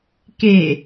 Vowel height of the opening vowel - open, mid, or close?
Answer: mid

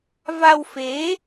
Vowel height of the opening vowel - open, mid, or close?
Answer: open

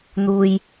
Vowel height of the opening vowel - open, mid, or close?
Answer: close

